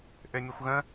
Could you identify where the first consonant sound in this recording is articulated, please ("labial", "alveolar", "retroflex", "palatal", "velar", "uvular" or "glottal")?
glottal